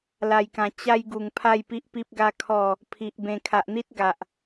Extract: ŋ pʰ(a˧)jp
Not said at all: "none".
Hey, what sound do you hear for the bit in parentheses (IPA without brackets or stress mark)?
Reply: a˥˧